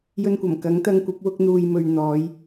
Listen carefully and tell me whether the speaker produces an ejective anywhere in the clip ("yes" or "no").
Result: no